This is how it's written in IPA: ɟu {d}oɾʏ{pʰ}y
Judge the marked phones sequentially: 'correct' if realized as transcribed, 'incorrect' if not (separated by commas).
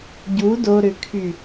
correct, incorrect